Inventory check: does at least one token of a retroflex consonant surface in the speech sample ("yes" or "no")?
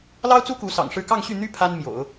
yes